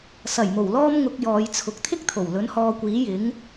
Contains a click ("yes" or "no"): no